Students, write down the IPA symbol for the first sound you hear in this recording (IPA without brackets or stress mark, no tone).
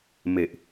m